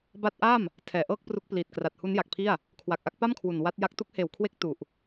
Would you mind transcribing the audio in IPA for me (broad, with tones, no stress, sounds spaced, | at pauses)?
b a˦˥ t̚ ʔ a˥˩ m | tʰ ɛː˨˩ ʔ ɤː˥˩ k̚ p r u˦˥ k̚ p l iː˨˩ t̚ k r a˨˩ t̚ h u˦˥ n j a˨˩ k̚ pʰ i˥˩ a̯ | kʰ w a˨˩ k̚ ʔ a˥˩ k̚ p a˥˩ m kʰ w u˨˩ n w a˦˥ t̚ j a˦˥ k̚ t u˦˥ k̚ h eː˨˩ w kʰ w e˦˥ k̚ t u˨˩ ʔ